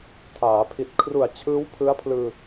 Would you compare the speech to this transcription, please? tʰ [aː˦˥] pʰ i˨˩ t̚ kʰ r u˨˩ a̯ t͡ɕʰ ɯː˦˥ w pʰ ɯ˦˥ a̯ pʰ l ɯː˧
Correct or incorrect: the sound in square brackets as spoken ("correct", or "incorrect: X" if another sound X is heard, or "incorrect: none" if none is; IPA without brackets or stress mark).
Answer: incorrect: aː˩˦